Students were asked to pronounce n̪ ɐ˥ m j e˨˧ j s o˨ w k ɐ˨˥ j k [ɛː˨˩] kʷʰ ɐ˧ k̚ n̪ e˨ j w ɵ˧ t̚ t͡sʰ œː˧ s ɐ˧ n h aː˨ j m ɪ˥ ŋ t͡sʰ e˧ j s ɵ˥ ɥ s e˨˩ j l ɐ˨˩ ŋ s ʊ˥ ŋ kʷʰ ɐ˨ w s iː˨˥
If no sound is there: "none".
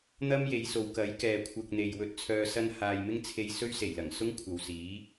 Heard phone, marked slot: ɛː˨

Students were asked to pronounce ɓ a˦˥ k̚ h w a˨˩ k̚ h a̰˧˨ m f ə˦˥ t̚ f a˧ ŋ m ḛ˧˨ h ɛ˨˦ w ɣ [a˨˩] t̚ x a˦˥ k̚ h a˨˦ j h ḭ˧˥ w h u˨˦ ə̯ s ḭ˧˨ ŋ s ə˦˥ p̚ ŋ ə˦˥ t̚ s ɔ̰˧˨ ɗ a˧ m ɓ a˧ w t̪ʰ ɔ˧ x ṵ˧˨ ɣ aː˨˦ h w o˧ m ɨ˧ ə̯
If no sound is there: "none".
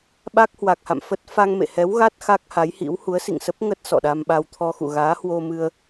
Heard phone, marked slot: a˦˥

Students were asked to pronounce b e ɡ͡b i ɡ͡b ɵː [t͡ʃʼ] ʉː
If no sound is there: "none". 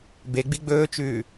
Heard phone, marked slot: t͡ʃ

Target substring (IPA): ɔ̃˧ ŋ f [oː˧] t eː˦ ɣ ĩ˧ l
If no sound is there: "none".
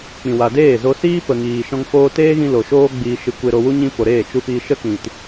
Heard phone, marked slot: oː˧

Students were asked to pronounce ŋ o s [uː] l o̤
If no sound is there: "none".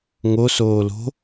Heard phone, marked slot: oː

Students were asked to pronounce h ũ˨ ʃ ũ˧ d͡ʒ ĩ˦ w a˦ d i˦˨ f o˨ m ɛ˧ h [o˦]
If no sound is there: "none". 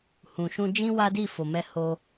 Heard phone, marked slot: o˦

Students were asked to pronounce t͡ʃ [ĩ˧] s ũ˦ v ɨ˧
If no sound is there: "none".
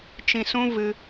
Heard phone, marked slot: ĩ˧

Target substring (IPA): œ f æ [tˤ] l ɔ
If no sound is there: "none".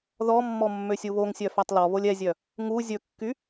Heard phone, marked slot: tˤ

